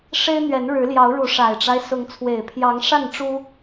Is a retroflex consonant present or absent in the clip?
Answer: present